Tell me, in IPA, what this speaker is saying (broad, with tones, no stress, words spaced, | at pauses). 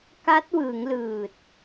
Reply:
ka˦˥t̚wɯː˩˦ŋ lɯː˨˩t̚